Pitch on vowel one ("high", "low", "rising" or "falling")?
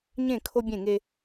falling